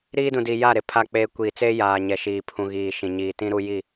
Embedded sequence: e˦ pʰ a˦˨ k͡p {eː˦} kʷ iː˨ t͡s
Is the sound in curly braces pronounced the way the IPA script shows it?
yes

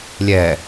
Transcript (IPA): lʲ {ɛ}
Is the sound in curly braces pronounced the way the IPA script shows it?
yes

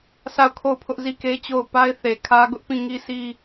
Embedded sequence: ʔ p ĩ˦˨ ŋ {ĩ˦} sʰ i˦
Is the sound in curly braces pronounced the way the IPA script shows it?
no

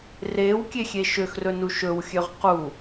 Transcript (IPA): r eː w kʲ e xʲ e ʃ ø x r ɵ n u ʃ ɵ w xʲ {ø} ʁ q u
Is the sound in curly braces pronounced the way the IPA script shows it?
yes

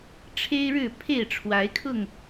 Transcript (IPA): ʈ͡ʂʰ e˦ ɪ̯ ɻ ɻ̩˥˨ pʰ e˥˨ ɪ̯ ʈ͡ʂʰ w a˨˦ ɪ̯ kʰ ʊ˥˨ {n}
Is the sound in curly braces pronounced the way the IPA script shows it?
no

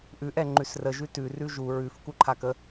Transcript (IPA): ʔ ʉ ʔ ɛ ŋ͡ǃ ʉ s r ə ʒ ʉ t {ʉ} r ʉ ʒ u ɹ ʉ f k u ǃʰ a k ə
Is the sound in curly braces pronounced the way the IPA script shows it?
yes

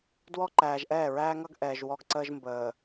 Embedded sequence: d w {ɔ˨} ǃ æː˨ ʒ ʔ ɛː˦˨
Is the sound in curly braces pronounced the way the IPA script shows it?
no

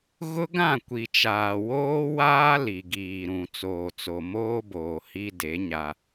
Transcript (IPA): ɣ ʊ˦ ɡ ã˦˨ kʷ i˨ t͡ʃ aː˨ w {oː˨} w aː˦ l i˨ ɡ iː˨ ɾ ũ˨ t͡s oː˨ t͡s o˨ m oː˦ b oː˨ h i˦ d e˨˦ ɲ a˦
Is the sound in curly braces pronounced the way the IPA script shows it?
no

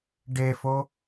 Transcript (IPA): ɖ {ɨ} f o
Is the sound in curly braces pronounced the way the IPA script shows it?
no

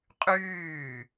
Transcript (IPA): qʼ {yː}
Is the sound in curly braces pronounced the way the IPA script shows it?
yes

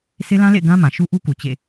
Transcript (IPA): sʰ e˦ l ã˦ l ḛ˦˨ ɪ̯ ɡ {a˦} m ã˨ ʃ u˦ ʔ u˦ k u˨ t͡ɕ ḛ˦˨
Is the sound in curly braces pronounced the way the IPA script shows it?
no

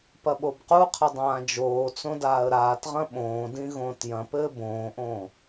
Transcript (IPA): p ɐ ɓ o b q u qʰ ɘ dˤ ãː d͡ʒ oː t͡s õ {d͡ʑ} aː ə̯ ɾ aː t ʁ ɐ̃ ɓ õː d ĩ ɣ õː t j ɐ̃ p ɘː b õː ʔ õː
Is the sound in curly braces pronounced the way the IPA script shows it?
no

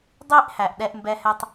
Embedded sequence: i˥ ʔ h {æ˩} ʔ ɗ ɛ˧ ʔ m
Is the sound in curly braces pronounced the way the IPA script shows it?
yes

